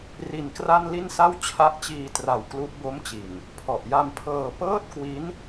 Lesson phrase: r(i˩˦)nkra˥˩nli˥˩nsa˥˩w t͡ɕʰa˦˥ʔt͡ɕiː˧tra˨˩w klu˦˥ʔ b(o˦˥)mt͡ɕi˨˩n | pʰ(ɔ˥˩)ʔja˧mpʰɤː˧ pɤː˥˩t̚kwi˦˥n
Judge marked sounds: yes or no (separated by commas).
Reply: no, yes, no